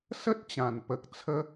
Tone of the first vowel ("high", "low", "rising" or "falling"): high